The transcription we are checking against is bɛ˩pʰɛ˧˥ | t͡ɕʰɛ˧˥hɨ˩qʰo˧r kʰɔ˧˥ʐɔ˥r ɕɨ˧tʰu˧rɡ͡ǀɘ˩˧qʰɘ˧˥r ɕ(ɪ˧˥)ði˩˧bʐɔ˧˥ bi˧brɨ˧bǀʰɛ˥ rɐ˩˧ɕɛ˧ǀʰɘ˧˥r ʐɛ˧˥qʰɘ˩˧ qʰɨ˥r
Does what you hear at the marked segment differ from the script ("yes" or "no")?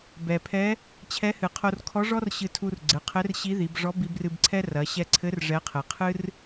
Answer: yes